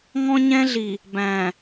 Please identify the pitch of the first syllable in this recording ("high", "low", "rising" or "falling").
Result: high